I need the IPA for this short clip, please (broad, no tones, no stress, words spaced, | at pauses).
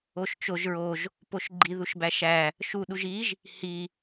oʃt͡ʃoʒ ɹoʒ | poʃɡ͡ǃi ðuʃbæʃæ | ʃu ɗuʒiʒ | hi